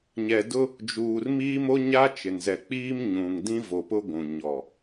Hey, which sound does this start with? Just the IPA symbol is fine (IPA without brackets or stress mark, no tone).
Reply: ɲ